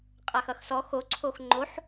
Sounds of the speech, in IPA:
qʼ a x ʌ x s ɔ x o ǀʰ o x ŋ͡ǃ o ħ

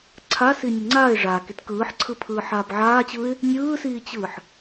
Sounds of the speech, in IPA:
ǀʰ a s i nʲ ɘ ŋ͡ǀ aː ɪ̯ ʐ aː k i t k ɯː ħ ǀʰ ɯ pʰ ɯː ħ aː b ʕ aː t͡ɕ ɯː ɪ̯ | nʲ ɯː s iː t͡ɕ ɯː ħ

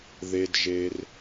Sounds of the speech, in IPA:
ð e˩ d ʒ e˩ r

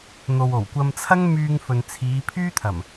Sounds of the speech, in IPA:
n̪ o˨ w o˨˩ w kʷ ɐ˧ m t͡sʰ ɐ˥ ŋ m yː˧ ŋ f ɵ˨ n t͡sʰ iː˨˧ pʰ yː˥ t̪ʰ ɐ˨˩ m

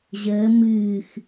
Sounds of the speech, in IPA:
ʑ əː m ɨː x

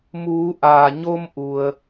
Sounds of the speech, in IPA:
m uː˩˧ ʔ aː˩ ɲ o˧ m ʔ u˩ ə̯

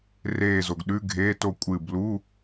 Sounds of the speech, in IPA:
r eː˧˩ z o˩ ɡ ɗ ʉ˧˥˧ ɡʱ eː˧˥˧ t o˥˩ kʷʼ ɨ˧˩ b l u˧˥˧

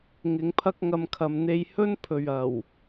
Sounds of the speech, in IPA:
ŋ ɪ˨˧ ŋ pʰ ɐ˥ k̚ ŋ ɐ˧ m kʰ ɐ˨ m n̪ e˧ j h ɵ˥ n pʰ ɵ˨ ɥ ɐ˨˩ w

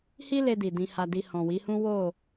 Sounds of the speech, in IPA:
h i˦ l e˧ d i˨ d ĩ˧ h a˧ d i˧ h ɔ̃˨ w i˨˦ h ũ˦ w o˦˨

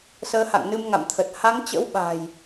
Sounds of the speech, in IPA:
s əː˨˦ h a̰˧˨ ŋ n ɨ˧ m ŋ a̰˧˨ m t̪ʰ ə˨˩ t̚ h a˨˦ ŋ t͡ɕ ə̰˧˥ w ɓ a̤˨˩ j

